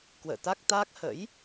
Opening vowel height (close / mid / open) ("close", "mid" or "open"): mid